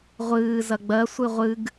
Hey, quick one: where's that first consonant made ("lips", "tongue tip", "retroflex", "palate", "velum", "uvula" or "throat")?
uvula